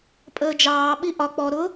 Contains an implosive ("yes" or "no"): yes